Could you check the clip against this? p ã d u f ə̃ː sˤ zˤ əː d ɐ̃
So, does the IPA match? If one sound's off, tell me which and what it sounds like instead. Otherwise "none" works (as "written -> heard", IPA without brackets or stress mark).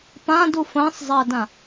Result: ɐ̃ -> ã